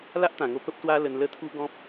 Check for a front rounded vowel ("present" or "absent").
absent